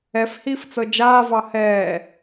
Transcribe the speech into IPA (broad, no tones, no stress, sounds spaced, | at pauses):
ɛ f h iː f t͡s ɤ d͡ʒ aː v ɑ h ɛː